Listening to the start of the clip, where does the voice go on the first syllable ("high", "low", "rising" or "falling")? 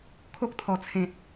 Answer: high